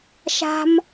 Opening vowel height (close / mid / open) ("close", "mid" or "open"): open